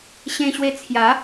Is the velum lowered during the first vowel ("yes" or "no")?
yes